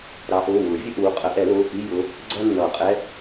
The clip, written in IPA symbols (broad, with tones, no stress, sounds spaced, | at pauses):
ɾ ɑ˨˦ ʔ ʊː˩˧˩ w ʊː˨˩˦ vʲ ə˥ ʔ uː˨˦ qʼ ə˨˩˦ ʔ ɛ˨˩˦ l ʊː˩˧˩ x i˧˥˧ j ʊ˨˦ | ɡ͡ǀ ʌː˥ nː ʌː˨˩˦ qʼ ɛ˧˥˧